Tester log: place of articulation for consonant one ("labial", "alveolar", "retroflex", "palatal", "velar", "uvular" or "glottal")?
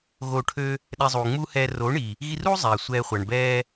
velar